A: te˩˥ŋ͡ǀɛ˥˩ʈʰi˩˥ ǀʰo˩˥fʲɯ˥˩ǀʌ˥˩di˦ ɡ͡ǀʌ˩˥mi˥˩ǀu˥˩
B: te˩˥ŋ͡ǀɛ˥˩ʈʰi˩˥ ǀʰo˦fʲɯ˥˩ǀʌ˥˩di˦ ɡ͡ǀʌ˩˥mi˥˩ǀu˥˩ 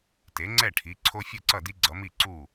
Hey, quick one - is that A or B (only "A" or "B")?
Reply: B